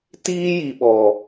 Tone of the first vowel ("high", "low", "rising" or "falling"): high